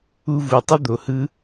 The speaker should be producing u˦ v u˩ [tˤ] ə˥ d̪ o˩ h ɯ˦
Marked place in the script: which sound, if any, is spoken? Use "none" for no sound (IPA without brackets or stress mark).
tˤ